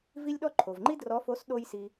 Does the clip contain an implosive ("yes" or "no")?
yes